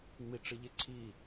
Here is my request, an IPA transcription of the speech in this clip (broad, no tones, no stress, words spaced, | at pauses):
ŋ͡miʈ͡ʂɯʎeǀʰi